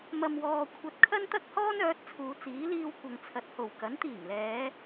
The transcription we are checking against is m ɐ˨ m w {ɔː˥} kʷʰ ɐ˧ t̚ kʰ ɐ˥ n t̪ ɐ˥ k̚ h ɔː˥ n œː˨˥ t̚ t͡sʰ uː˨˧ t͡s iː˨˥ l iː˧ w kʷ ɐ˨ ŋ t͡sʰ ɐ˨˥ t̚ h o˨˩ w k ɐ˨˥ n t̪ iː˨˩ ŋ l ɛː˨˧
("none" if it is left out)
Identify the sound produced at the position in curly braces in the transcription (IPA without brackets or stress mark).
ɔː˨